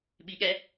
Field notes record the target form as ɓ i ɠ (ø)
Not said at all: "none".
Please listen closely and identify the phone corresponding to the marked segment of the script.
ɛ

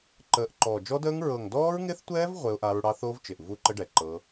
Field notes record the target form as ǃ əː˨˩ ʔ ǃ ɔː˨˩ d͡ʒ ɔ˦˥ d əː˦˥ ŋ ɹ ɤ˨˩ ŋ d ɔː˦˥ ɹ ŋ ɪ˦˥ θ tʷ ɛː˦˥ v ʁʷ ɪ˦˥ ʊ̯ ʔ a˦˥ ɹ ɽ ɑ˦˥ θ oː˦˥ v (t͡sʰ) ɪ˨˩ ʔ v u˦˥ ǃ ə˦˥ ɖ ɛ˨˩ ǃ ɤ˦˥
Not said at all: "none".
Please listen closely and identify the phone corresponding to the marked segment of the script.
t͡ʃ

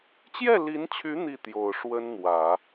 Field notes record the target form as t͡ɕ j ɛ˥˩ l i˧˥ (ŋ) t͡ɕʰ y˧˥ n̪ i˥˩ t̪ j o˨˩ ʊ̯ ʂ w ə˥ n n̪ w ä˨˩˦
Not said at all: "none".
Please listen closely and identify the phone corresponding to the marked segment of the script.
n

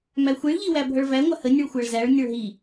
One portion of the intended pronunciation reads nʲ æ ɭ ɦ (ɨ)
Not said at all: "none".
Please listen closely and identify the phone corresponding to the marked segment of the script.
i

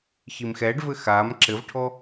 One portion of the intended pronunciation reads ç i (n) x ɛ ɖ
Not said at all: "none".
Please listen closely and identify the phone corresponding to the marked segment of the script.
m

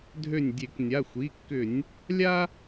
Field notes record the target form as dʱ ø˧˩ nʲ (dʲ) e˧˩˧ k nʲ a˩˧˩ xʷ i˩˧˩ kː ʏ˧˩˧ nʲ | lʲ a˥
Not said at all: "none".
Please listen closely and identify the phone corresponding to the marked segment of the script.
dʲ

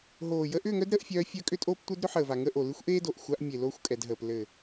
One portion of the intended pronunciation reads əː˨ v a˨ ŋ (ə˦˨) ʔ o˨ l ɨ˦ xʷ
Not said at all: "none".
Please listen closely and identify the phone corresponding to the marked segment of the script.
ə˦˨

